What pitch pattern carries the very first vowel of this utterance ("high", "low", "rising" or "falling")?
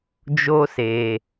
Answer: high